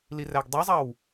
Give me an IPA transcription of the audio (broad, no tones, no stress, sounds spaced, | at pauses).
l i r æ ɡ dˤ e zˤ ɑ w